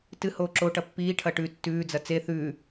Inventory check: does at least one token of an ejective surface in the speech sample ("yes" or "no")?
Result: no